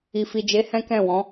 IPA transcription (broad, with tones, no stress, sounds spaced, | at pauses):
i˨ f i˨ d͡ʒ e˨˦ h ɛ̃˦ k ɛ̃˦˨ w ɔ̃˨˦